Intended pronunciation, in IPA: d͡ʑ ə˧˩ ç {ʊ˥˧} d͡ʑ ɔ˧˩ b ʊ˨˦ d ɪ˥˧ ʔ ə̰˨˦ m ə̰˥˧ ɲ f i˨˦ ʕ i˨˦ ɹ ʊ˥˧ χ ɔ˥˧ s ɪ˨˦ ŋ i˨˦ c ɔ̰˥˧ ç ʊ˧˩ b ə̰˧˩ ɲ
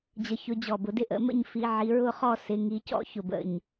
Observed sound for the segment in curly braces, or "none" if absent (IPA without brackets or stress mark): ʊ˨˦